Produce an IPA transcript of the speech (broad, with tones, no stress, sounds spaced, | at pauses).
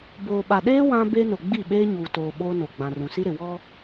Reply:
b oː˨ ɓ a˨ ɗ eː˦ w ã˦ b e˦ n ʊ˨ ɡ͡b i˦˨ ɓ eː˦ ɲ uː˨ t oː˨ ɓ oː˦ n o˨ ɡ͡b ã˨ r ũ˨ s i˦ ɾ ɪ˨ w ɔ˦